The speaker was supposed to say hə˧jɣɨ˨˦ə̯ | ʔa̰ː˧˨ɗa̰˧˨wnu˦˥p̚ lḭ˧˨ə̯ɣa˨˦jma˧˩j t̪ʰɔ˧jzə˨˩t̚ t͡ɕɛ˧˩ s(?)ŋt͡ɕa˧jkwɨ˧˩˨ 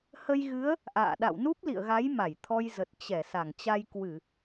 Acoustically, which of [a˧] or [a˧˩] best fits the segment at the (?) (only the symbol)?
a˧˩